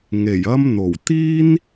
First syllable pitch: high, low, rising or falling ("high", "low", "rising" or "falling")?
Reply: low